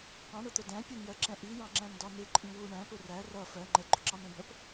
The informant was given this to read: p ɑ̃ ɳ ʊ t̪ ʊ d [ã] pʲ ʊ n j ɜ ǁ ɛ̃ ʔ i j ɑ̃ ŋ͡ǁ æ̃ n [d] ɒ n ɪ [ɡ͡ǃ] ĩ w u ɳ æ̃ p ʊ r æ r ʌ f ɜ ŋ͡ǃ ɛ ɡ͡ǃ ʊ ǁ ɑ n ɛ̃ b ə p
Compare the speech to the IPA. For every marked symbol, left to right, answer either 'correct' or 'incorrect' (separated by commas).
incorrect, correct, incorrect